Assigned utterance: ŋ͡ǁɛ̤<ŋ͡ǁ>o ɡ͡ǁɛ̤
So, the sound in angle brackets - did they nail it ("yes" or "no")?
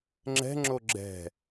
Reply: yes